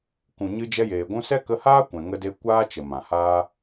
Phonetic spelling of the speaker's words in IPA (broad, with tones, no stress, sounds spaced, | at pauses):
k ũ˨ ɲ ɨ˧ d͡ʒ ɛ˧ j eː˨ ɡʷ ũ˧ s ɛ˦ k ə˧ h aː˦ kʷ ɛ̃˨ ŋ ə˧ d e˧ kʷ aː˦ t͡ʃ ə˨ m ã˨ h aː˦